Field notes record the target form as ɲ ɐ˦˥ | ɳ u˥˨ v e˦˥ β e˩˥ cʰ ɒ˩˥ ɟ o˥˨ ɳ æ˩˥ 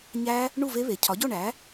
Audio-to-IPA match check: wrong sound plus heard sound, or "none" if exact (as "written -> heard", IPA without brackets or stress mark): ɐ˦˥ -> æ˦˥